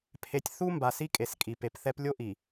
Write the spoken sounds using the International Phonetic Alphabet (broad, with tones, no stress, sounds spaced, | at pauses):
pʰ e˨ tʲ θ u˦ m b a˨ s i˦ kʼ e˨ s kʼ i˨ p e˨ p θ ɛ˦ p lʲ o˦ ʔ i˨